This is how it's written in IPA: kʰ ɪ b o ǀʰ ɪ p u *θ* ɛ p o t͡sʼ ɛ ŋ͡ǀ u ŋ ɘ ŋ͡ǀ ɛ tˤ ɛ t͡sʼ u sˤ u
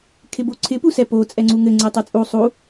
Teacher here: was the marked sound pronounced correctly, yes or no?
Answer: no